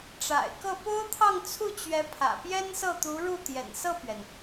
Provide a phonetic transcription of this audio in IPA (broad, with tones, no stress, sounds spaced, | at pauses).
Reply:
ʈ͡ʂ a̰˨˩ ɪ̯ k ɤ˥˩ p o˥ ʊ̯ t̪ʰ ɑ˥˧ ŋ t͡sʰ u˥˩ t͡ɕ ɥ ɛ˧˥ pʰ ä̰˨˩ p j ɛ˥ n s ɤ˥˩ t̪ u˧˥ ɻ u˥˩ t̪ j ɛ̰˨˩ n s ɤ˥˩ p ɥ ɛ˩ n